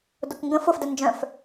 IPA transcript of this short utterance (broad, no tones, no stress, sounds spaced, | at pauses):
d ʊ k ŋ ɡ ə̃ f ʊ f d ə n d͡ʒ œ̃ f